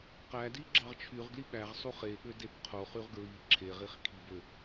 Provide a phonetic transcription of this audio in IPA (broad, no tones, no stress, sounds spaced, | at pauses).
q æ d i ɡ͡ǁ ɑ ʁ t͡ʃʰ y ʁ ɡ l i ɓ æ ʁ sˤ u χ e ɠ ø d e b qʰ o χ y ʁ ɡ ɹ i ǁʰ e ʁ i χ kʰ i b ø